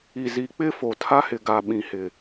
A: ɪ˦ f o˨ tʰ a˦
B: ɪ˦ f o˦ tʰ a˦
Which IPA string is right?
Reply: A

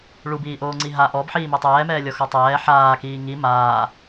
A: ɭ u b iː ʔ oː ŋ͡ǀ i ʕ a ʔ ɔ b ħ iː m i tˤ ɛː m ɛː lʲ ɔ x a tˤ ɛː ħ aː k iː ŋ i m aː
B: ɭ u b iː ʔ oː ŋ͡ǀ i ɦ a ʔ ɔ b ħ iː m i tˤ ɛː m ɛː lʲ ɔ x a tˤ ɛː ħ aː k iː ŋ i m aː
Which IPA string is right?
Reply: B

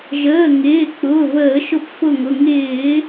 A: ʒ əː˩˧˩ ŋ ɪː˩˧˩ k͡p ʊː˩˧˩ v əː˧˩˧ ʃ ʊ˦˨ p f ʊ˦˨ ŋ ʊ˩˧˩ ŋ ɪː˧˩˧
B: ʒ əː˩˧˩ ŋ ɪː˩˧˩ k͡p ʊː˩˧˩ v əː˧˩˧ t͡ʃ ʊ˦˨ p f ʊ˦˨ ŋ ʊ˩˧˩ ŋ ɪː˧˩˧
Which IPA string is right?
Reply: A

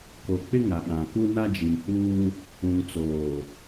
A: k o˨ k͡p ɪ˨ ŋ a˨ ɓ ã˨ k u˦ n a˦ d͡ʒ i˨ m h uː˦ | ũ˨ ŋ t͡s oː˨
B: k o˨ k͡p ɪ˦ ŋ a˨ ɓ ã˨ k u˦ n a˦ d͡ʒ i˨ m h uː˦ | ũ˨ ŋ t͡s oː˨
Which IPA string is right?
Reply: B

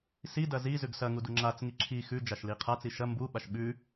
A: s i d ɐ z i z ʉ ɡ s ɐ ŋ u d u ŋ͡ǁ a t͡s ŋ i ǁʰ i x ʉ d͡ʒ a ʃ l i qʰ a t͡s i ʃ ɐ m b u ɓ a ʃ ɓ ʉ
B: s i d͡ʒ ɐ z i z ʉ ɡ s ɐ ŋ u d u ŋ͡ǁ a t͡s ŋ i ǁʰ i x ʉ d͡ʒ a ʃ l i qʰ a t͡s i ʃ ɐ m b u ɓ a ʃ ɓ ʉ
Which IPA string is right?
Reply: A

